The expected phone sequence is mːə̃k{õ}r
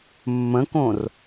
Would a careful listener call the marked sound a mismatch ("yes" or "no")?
no